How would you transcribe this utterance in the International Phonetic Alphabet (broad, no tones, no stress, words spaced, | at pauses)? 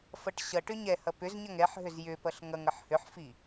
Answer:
fʌʈɕʌʈʏ ɲɛhʌ pʏzɲʌŋ ɛħɦʏz jʏpʌɬ ŋʌŋʌħ hʏħfi